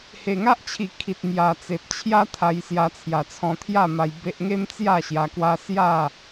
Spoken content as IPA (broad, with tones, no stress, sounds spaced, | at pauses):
h e˨˩ ŋ a˦ ʔ t͡ɕʰ i˨˩ kʰ i˨ t̚ m j a˨˩ t͡s e˨ p̚ t͡ɕʰ j a˦ t̪ʰ a˧ j s j a˧ t͡sʰ j a˨˩ t͡sʰ ɔ̃˧ t̪ʰ j a˥˧ m a˧ j b e˦ ʔ ŋ e˦ m t͡s j a˥˧ ɕ j a˧ k w a˦ s j a˥˧